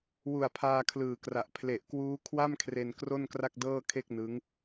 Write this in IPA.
w u˨˩ a̯ pʰ aː˧ kʰ l ɯː˨˩ k r a˨˩ ʔ pʰ l e˨˩ ʔ k w uː˦˥ kʰ w a˥˩ m kʰ r e˧ n k r o˥˩ n k r a˥˩ k̚ d ɤː˥˩ kʰ e˥˩ k̚ n ɯ˦˥ ŋ

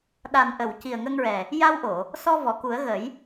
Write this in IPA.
ɗ a˨˩ n ʔ ə˨˩˨ w c i˨˩ ə̯ ŋ ə˧ ŋ ɹ ɛ˨˩ | j a˧ w ʔ o˨˩˨ | s ɔ˧ v ɔ˨˩˨ k u˨˩˦ ə̯ ɣ ə˨˩˦ j

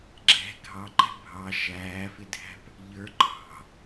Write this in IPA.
ɡ͡ǁ ɛ̤ ɡʱ ɑ ǃ ɛ̤ bʱ ɑ ʃ æː f ɪ dʱ æ̤ p | ʎ ə˞ ǃʰ ɑ̤

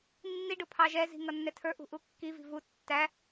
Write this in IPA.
nː i ɖ ʊ pʰ ɑ ʒ ɛ z i̤ ŋ ʌ nː ɛ tʰ ə˞ ʔ ṳ ʔ u kː i v i̤ v u tː æ

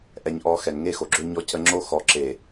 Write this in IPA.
ʔ ɛ˨ ɲ ʔ ɔ˨˦ x ɛ˨ n ŋ e˦ x o˨ ɡ͡ǁ ø˦ ɲ ɔ˦ c ə˦ ŋ͡ǁ o˦ x ɔ˨ ǁ e˨

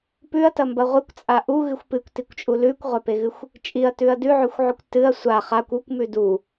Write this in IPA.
p ʉ ɐ̯ t ɐ m b ɐ ʁʷ ɨ kʷ t͡sʼ a ʔ u ɣ ɨ xʷ p ɨ kʷ t i kʷ t͡ʃʼ u l ʉ kʷ ʁʷ a p e ɣ ɨ xʷ | t͡ʃʼ i ɐ̯ t ʉ ɐ̯ d ʉ ʕ ʉ xʷ ʕ ʉ kʷ t ɨ ɐ̯ sʷ a χ a kʷ u kʷ m ʉ d u

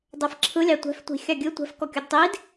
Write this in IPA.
dˤ ɛ f ǁʰ ɯ lʲ ɑ tʷ ɛ̤ f tʷ i̤ xʲ ɑ ɡʲ ɯ tʷ ɛ̤ f k ɔ kʲ u d tˤ i d

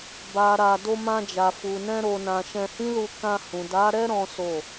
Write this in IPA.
b a˨ ɾ a˨ d o˧ m ã˧ d͡ʒ a˨ f u˨ n ɛ̃˧ ɾ o˨ n ã˨ ʃ ɛ̃˧ h ĩ˦ l u˧ k ã˧ h ũ˨ d a˨˦ ɾ ɛ˦ ɾ ɔ̃˦ s o˦˨

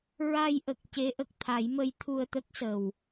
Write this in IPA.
ɹ a˧ j ʔ ə˨˩ k̚ c e˧˥ ʔ ə˨˩ k̚ t̪ʰ a˨˩˦ j m ə˧˥ j t̪ʰ u˧ ə̯ t̪ ə˦˥ k̚ s ə˨˩ w

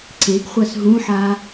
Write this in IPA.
ǀ e ɡ χʷ a s ɦ ũ ħ a

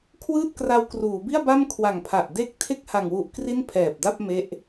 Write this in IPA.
kʰ w ɯː˥˩ t̚ k r a˧ w k r uː˩˦ b i˥˩ a̯ b a˥˩ m kʰ w a˨˩ ŋ pʰ a˨˩ ʔ d e˥˩ k̚ tʰ e˥˩ k̚ h a˨˩ ŋ w u˨˩ ʔ k r i˥˩ n pʰ ɛː˨˩ p̚ d a˥˩ p̚ m e˦˥ ʔ

